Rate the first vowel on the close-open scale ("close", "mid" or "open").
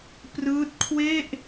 close